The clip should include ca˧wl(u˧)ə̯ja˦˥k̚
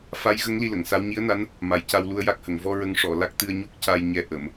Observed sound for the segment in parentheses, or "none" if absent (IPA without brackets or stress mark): u˧